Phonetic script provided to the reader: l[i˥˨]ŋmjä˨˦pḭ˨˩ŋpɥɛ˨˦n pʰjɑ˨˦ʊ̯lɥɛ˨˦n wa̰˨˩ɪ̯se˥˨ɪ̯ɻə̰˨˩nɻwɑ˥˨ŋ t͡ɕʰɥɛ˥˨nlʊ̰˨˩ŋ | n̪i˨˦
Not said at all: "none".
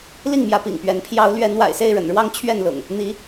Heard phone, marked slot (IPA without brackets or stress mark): i˥˨